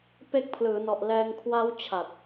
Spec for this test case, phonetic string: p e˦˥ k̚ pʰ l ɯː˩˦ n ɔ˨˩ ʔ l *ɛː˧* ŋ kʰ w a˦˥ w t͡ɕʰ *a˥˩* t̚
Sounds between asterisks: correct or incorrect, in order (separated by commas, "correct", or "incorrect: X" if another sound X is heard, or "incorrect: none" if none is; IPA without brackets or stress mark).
correct, incorrect: a˨˩